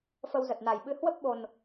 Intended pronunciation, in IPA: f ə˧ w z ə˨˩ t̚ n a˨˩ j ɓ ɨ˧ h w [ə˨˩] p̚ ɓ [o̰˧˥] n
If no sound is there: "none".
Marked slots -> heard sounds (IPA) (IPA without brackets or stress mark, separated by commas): ə˦˥, o˨˩